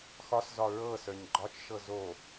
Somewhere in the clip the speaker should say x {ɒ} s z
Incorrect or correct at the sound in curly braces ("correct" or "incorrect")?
correct